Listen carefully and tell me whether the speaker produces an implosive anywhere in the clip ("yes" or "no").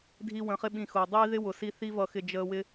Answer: yes